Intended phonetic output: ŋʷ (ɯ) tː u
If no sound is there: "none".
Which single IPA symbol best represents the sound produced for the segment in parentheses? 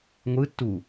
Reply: ɯ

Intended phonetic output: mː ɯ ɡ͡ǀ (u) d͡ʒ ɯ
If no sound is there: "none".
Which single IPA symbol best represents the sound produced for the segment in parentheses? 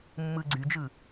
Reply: y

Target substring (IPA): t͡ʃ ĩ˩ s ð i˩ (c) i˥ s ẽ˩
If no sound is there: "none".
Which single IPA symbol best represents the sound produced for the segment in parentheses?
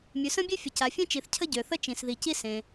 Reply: c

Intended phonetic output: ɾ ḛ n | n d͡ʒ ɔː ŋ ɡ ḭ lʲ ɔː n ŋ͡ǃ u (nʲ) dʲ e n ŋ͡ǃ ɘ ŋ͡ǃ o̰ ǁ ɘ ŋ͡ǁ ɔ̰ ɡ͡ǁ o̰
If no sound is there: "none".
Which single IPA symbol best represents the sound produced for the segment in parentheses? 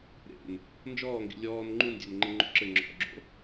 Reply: n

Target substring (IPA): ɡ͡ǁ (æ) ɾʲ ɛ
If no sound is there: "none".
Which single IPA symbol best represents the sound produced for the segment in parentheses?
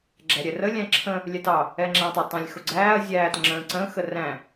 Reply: æ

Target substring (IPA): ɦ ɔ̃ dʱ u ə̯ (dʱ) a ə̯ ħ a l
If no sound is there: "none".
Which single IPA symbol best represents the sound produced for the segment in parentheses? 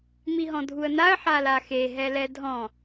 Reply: n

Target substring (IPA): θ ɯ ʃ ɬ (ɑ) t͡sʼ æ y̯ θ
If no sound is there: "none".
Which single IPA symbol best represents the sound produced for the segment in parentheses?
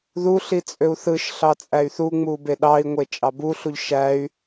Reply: ɑ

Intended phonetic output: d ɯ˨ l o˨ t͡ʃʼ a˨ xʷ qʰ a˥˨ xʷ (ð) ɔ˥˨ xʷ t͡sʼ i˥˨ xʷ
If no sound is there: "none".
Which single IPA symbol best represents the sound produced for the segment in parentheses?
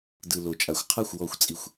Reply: w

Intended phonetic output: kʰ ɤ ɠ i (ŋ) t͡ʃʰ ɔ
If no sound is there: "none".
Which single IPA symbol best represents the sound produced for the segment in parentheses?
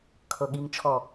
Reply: ŋ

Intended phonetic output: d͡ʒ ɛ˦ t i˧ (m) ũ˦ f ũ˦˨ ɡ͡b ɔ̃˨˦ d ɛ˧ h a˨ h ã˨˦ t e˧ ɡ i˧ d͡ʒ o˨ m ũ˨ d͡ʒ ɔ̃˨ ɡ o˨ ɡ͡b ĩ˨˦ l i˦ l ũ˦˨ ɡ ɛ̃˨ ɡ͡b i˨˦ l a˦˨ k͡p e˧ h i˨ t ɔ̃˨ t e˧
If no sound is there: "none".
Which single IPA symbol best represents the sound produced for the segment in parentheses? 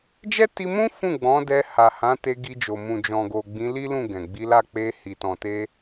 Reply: m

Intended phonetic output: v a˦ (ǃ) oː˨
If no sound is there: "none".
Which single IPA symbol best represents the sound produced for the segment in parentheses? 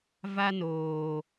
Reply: n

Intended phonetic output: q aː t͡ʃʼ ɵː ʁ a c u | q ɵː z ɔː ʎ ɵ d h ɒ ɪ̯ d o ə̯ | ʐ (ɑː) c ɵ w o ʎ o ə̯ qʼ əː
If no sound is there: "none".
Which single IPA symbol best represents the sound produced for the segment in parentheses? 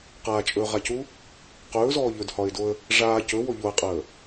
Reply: aː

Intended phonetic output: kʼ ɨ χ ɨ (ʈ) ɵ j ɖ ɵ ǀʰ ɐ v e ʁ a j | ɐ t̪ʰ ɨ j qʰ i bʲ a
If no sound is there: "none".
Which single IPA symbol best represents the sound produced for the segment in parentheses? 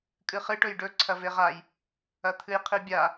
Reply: ʈ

